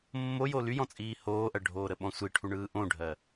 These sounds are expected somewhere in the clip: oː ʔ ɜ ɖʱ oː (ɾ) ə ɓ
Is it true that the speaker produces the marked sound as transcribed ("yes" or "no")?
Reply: yes